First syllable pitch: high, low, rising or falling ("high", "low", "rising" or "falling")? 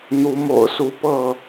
rising